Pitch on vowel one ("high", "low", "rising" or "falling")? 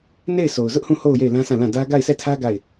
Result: falling